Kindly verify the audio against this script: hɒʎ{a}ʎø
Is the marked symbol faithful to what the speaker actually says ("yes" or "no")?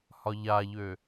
yes